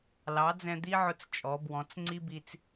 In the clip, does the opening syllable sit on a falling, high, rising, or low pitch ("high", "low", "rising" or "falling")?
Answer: rising